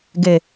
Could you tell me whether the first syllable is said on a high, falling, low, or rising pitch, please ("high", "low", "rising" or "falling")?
low